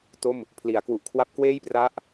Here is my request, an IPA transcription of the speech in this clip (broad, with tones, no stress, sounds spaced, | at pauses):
t o˥˩ m | pʰ l i˩˦ a̯ k w u˨˩ ʔ kʰ w a˦˥ p̚ k w eː˥˩ j p r a˦˥ ʔ